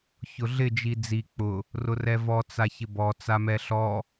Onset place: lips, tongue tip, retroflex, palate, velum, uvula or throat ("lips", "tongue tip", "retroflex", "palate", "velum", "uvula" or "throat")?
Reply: palate